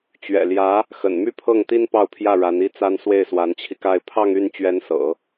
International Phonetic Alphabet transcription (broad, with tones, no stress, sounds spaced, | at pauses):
t͡ɕ ɥ ɛ̰˨˩ l j ä˧˥ | x ə̰˨˩ n m y˥ pʰ ɤ˥˩ ŋ t̪ i˥ n p ɑ˥˧ ʊ̯ pʰ j ä˥˩ ɻ a˧˥ n i˥ t͡s a˥ n s w e˥˩ ɪ̯ s w a˧˥ n t͡ɕʰ i˧ k a˥˧ ɪ̯ pʰ ɑ˥˧ ŋ y˥˩ n t͡ɕ ɥ ɛ˧˥ n s ɤ̰˨˩˦